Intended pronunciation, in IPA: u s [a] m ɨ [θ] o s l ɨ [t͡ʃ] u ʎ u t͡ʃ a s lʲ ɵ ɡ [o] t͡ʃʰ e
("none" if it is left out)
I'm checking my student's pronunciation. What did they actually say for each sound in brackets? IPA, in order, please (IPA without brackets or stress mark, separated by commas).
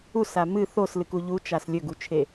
a, θ, k, u